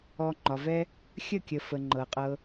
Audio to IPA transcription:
ɔ˧ ŋ͡ǃɒ˨vɛ˦ | xʲə˦˨kʲə˨ fə˨ŋ͡ǃɤ˨qʼɤ˧

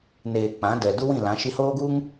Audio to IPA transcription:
neː˨ k͡pã˨˦dɛ˨ du˦wĩ˦˨lã˨˦ ʃi˧hoː˦ɡu˦ŋ

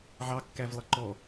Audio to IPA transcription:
ʕɑkːævlˠʌ ǃɔ

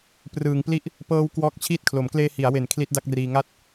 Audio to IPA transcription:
prɯː˩˦ŋpli˥˩ʔ | pɤː˦˥w kwɔː˦˥k̚t͡ɕʰiː˥˩t̚kʰlo˩˦m kleː˧ hi˩˦a̯we˩˦n kʰli˦˥t̚da˥˩k̚riː˧ ŋa˦˥t̚

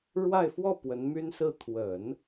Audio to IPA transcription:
ɻwa˥˧ɪ̯fwɔ˥˩ pwə˧˥nmy˥nsɹ̩˥˩ t̪ʰwə˨˩˦n

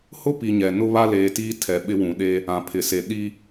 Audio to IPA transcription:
hʊ˦pi˨ ɲɛ˨nʊ˦βa˦ leː˨tiː˦tʰɛ˨ ɓɪ˦wũ˨ɗeː˦ | ã˨pʰɪ˨se˨ ɗi˦

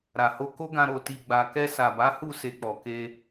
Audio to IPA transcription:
ɾa˨ho˧ko˦ɡã˧ ɾo˨ ti˨ɡ͡ba˨kɛ˧ sa˨ba˨˦hu˦˨ se˧k͡pɔ˨ke˧

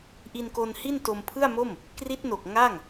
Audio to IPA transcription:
ʔi˧nko˧nhi˥˩n to˧mpʰɯ˥˩a̯mo˥˩m | kri˦˥t̚no˨˩k̚ ŋa˥˩ŋ

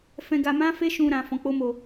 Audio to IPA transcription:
fɛ̃˧ɡa˧mã˦fe˦ ʃũ˧ɾã˨ fɔ̃˨˦k͡po˦mo˧

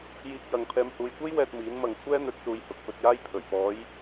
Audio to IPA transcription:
jiː˧k̚jɐ˨ŋ pʰɛː˨mhuː˨jkʷe˥j wɛː˧t̚miː˨˥n mɐ˨ŋ kʷʰɛː˥n̪ɵ˨˥t̚suː˨j hʊ˨k̚pɵ˧t̚jaː˥j pʰɵ˨˩ɥpɔː˨˧j

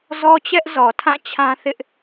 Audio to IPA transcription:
zɔ˦t͡ɕɛ˦ʔzɔ˨ tʰã˦˨ t͡ɕʰã˦θɪ˦ʔ

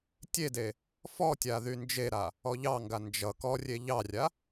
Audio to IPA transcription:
tʲede | fɔtʲa ðynd͡ʒeɾa | ɔʎɑŋɡa nd͡ʒʌ kɔrʲe ʎɑrʲa

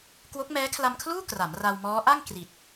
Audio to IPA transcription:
kwo˦˥k̚mɛː˦˥ kʰla˧mkʰluː˥˩ kra˩˦mra˧wmɔː˦˥ ʔa˥˩ŋ kri˨˩t̚

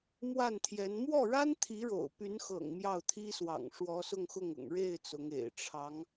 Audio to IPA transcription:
mwa˥˩nt̪ʰjɛ˧˥n mwɔ˥˩ɻa˥n t̪ʰi˧˥ɻo̰˨˩ʊ̯py˧˥nxɤ̰˨˩ŋ mjɑ˥˩ʊ̯t̪ʰi˥swɑ̰˨˩ŋ ʂwɔ˧˥sʊ˥˧ŋxʊ˥˩ŋʊ̰˨˩ŋ ɻe˥˩ɪ̯ t͡sʊ˧˥ŋḛ˨˩ɪ̯ ʈ͡ʂʰɑ˧˥ŋ

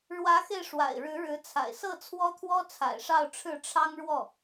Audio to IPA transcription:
ɻwä˧˥xe˧ɪ̯ ʂwa̰˨˩ɪ̯ɻɻ̩˧˥ɻɻ̩˧˥t͡sʰa̰˨˩ɪ̯ sɤ˥˩t͡sʰwɔ˥t̪ʰwɔ˥ t͡sʰa̰˨˩ɪ̯ʂɑ˥˧ʊ̯ʈ͡ʂʰɻ̩˥˩ ʈ͡ʂʰɑ˥ŋɻwɔ˥˩

